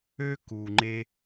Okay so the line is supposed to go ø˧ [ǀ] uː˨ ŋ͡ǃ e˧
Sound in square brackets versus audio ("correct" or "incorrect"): incorrect